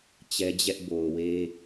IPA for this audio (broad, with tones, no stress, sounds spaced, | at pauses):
t͡ɕ ɛ˦ d͡ʑ ɛ˦ ʔ b o˨ ʊ̯ w e˦